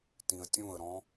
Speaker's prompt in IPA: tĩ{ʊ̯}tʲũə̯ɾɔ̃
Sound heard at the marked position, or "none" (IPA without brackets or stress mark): ə̯